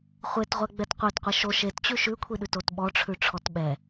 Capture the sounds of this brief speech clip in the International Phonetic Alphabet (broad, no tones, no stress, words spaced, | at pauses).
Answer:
χʷetʁʷɛ ɡ͡bɛtqʷɛtqʷi ʃo ʃett͡ɕʉ ʃʉkʷʰiɗʉtot ɓɔʈ͡ʂʰʉ ʈ͡ʂʰɔtɓɛ